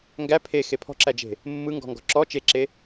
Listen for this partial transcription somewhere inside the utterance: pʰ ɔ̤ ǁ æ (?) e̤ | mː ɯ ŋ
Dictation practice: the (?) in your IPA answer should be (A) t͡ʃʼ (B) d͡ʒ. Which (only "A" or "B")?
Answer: B